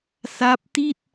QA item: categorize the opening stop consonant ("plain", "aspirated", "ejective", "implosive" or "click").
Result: plain